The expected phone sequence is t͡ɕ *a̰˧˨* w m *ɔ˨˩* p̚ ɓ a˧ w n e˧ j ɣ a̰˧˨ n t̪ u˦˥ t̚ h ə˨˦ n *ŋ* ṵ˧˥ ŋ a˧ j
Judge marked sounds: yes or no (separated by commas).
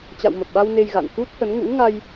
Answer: yes, no, yes